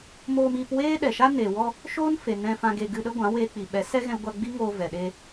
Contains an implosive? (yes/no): yes